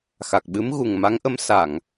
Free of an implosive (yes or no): no